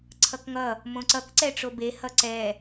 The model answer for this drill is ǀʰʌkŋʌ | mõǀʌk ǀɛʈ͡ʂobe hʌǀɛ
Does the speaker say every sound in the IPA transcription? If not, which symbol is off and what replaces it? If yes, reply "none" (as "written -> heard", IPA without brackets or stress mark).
none